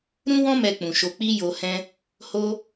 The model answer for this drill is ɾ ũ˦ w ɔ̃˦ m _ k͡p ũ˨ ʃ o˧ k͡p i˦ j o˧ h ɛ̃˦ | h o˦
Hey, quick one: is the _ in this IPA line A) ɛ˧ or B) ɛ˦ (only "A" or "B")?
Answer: A